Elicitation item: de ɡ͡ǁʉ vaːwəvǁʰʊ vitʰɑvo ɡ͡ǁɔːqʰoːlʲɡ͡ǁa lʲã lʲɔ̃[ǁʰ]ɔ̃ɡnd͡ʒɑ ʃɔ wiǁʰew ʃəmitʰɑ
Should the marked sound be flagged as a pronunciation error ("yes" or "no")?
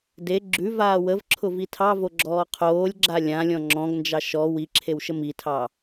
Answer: yes